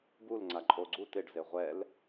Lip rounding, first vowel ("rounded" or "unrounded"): rounded